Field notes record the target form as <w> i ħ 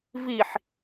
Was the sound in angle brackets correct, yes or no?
no